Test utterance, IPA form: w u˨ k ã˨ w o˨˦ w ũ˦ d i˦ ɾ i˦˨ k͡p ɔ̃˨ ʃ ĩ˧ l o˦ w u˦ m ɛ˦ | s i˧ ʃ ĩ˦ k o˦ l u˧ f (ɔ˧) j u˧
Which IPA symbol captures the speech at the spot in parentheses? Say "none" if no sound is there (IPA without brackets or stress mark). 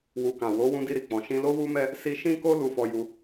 ɔ˧